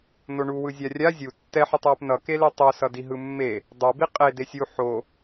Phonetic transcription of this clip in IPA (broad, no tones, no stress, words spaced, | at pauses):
noɳuwɯzʲa rʲa zʲu tːɛħutˤwɛp nʌkeli tˤosʌdi ɦɯmːe | dˤobi qʼe desʲu ħo